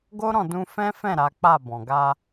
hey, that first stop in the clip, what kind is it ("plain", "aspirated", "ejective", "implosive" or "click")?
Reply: plain